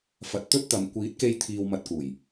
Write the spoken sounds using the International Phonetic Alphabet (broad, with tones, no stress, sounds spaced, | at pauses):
f ɐ˨˥ t̚ t̪ ɵ˥ t̚ t̪ ɐ˨ m kʷ iː˨˥ t̚ k e˧ j t̪ʰ iː˧ w m ɐ˧ t̚ k uː˨˩ j